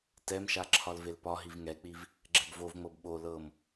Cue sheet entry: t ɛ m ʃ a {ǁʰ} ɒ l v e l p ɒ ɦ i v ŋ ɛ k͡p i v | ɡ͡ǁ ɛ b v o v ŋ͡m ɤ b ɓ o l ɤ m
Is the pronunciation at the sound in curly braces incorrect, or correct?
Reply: correct